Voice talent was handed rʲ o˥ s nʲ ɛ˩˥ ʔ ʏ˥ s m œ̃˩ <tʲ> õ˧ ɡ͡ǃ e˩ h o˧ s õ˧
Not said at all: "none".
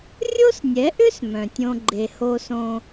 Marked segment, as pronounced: tʲ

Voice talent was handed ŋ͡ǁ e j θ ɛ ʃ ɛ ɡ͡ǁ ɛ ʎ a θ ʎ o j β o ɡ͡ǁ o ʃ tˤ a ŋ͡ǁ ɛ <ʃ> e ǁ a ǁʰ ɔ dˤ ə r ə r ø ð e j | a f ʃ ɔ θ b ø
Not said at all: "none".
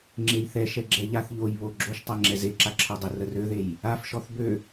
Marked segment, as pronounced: z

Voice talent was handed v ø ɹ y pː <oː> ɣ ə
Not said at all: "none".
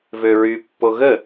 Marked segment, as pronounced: o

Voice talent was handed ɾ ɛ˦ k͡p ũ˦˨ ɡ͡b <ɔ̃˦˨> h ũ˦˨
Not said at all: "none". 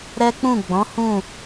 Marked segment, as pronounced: ɔ̃˨˦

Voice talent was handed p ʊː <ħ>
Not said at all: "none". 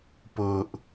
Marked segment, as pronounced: ʔ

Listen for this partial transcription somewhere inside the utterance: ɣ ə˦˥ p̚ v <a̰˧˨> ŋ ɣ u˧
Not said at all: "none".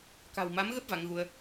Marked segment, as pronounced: a˨˦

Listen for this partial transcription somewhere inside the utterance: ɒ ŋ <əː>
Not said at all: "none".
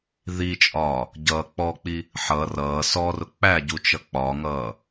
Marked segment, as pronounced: ʌː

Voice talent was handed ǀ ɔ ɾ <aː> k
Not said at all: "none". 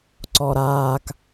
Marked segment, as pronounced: aː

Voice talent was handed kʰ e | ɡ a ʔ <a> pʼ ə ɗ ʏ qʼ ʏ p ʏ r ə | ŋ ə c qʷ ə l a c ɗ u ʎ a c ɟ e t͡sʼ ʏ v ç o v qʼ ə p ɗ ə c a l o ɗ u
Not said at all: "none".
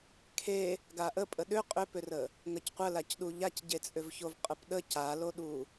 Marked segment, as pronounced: ə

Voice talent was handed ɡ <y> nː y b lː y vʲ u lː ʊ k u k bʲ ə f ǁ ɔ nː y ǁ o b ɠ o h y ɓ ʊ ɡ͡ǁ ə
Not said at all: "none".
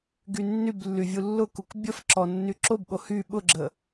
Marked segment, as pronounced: y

